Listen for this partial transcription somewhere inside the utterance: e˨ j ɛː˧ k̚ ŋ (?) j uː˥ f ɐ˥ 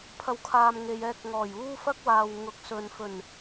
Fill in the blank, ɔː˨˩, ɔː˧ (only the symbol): ɔː˨˩